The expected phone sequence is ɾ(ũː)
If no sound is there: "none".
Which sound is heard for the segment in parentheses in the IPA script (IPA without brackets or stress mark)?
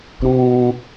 ũː